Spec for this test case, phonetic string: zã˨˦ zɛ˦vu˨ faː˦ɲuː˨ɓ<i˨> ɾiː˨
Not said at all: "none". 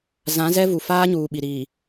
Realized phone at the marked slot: i˨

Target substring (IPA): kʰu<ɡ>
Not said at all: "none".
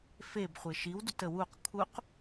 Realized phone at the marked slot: q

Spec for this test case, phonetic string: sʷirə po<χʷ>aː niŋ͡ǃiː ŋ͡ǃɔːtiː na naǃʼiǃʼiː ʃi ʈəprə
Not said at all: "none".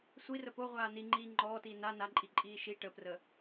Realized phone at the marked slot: ʁʷ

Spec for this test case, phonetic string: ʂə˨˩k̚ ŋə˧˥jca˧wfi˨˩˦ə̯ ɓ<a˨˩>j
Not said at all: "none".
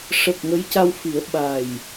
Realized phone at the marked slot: a˨˩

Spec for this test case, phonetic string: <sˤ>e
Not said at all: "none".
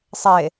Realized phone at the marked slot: sˤ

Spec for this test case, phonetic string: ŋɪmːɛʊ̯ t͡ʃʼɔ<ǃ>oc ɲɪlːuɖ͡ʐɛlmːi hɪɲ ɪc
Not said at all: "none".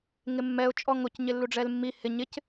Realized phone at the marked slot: ŋ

